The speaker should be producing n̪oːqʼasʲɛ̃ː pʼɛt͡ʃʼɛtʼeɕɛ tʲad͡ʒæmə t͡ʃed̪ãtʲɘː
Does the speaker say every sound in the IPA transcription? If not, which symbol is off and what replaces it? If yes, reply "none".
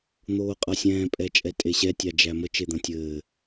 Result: none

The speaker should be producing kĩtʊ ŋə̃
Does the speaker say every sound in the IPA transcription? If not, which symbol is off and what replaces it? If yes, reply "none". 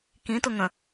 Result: none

